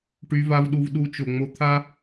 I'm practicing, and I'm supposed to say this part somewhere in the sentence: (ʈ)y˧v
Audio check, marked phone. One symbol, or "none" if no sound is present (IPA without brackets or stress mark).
ʈ